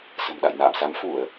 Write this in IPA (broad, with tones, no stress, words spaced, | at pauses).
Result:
sə̤˨˩mɗa̰˧˨j na̰ː˧˨msa˨˦m fu˧˩˨ə̯